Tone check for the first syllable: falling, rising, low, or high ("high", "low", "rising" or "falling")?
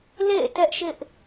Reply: falling